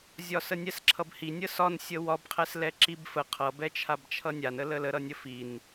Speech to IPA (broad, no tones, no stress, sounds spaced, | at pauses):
zʲ ɒ s ə nʲ ɛ s ǁʰ ʌ b h i nʲ ə s ɒ n sʲ ə w ɒ b qʰ ɛ s l ɛ ǁ i b f ə qʰ ʌ b ɛ t͡ʃʰ a b t͡ʃʰ ʌ nʲ a n ə l ə l ə ɾ ʌ nʲ ə f i n